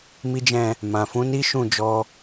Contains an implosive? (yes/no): no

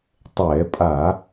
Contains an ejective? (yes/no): yes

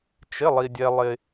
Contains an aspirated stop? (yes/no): no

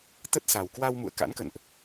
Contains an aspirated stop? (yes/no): no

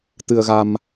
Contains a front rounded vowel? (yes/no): no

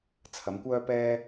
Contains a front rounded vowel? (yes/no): yes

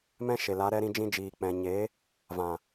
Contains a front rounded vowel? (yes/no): no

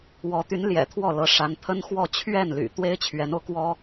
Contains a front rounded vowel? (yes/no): yes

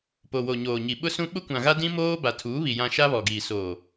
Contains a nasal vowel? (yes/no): yes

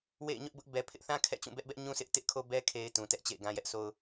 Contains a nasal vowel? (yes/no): yes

